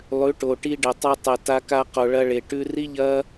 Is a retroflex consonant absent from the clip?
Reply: no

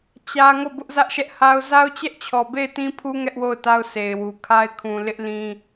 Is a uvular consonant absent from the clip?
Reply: yes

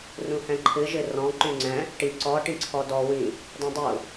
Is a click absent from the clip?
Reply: no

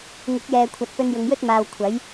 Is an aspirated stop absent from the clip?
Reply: no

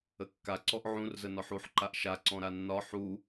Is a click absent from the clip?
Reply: no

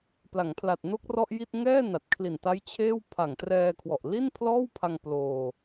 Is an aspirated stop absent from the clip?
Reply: no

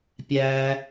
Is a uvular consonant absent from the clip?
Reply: yes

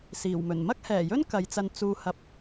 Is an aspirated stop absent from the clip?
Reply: yes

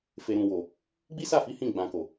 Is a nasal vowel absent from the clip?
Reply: no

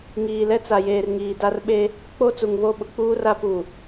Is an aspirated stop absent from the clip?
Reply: yes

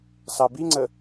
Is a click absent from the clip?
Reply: no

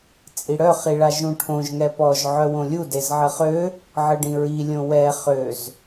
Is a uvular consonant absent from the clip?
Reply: no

